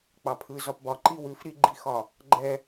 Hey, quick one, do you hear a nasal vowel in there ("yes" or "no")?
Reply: no